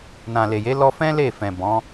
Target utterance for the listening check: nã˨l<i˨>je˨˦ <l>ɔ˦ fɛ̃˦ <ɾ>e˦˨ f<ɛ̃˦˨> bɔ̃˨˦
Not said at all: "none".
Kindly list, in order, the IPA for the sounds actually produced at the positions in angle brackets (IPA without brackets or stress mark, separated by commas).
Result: e˨, l, l, ɛ̃˨